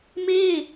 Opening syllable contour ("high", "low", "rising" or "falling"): falling